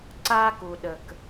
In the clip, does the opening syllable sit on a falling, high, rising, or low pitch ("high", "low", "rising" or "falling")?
high